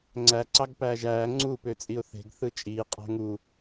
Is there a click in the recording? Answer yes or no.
yes